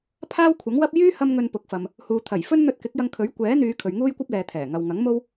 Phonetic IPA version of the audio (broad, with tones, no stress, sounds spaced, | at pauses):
pʰ aː˥ w kʷʰ ɐ˨˥ ŋ w ɐ˥ p̚ j yː˥ h ɐ˧ m ŋ ɵ˨ n p ʊ˨˥ k̚ f ɐ˨ m | h uː˨ t̪ʰ ɐ˨˩ j f ɵ˥ n n̪ ɵ˧ t̚ k ɪ˨˥ k̚ j ɐ˧ ŋ kʰ ɵ˨˥ ɥ kʷ ɛː˨˥ n̪ yː˨˧ kʰ ɵ˨ ɥ ŋ uː˥ j kʷ ɐ˥ p̚ l ɛː˨ t̪ʰ ɛː˨˩ ŋ ɐ˨ w ŋ ɐ˨˥ ŋ m o˥ w